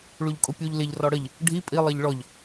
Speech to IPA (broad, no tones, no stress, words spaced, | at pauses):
ɭuʎkʼʊpʲuʎ lɪʎ rɔɽəʎ | ɖʱi pʼi lˠɜʎɭɔʎ